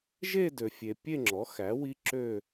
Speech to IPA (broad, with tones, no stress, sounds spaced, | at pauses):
ʒ e˥˧ d ø˨ fʲ e˨ pʲ e˥˧ ŋ͡ǁ ɔ˩˥ x æ˩˥ w i˦˥ ǁ ø˥˧